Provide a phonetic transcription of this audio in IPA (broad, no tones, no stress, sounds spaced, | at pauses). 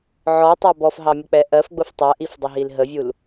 ʕ ɔ tˤ æ b ɔ f ɦ ɑ mʲ ə k͡p ɛ ʔ ɜ f ɡ͡b ʊ f tˤ ɜ ʔ i f dˤ ɪ ɦ i l ɦ ə vʲ u l